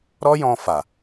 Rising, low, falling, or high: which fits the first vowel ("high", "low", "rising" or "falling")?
high